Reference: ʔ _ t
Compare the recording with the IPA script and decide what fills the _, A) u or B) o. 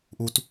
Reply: A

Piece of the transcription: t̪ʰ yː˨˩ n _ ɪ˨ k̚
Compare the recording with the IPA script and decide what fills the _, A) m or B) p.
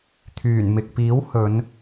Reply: A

